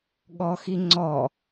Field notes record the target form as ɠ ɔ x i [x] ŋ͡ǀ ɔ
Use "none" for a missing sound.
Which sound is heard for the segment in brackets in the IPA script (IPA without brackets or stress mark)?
none